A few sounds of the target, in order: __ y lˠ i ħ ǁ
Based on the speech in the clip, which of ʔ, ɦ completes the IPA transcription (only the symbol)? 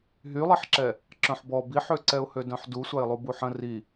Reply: ɦ